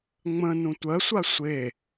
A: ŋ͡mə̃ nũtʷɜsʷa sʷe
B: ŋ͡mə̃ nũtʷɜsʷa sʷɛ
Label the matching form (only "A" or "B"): A